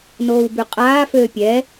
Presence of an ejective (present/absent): present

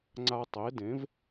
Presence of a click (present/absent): present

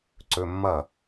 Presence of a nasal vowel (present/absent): absent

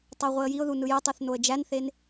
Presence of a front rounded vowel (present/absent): present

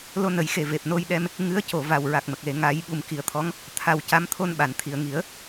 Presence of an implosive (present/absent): present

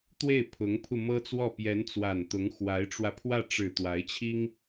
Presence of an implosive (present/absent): absent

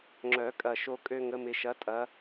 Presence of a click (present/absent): present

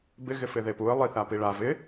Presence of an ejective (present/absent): absent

